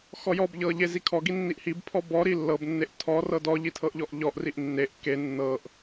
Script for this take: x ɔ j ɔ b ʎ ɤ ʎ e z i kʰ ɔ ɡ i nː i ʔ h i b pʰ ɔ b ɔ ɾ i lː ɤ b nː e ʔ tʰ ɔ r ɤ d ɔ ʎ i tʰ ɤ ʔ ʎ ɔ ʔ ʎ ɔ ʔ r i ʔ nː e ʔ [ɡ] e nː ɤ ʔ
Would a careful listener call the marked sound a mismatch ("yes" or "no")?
yes